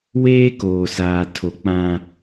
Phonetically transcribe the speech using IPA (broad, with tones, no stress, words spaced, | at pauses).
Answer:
weː˦koː˨saː˨ tʰo˨k͡pã˦